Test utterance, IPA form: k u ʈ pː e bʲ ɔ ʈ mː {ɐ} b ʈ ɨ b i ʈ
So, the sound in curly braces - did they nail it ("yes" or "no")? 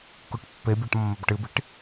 yes